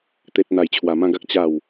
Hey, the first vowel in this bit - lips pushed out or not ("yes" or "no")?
no